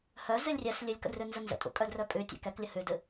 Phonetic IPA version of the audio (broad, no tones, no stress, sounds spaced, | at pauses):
h œ z ɨ lʲ rʲ ɛ s lʲ ɨ lʲ k ə̰ d r ʉ n z ə n z ə̰ tʼ ṵ kʼ œ d r œ pʼ ʉ tʲ ɛ̰ k ɛ k lʲ ə h ʉ d ɨ